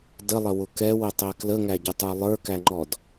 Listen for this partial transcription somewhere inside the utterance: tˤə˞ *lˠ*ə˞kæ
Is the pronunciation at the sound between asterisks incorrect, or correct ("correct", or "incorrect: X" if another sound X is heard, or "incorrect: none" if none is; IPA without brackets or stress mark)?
correct